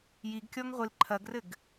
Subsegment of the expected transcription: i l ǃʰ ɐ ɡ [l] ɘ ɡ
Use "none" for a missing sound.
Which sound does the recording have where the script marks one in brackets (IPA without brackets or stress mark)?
r